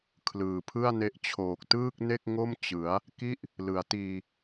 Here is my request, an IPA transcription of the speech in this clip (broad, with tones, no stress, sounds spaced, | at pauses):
kʰ l ɯː˨˩ pʰ ɯ˥˩ a̯ n e˦˥ ʔ t͡ɕʰ oː˨˩ k̚ t ɯː˥˩ k̚ n e˥˩ k̚ ŋ o˥˩ m t͡ɕ ɯ˩˦ a̯ | k i˥˩ ʔ | l ɯ˩˦ a̯ t iː˧